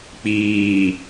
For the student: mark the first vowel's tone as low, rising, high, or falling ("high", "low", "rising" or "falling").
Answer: low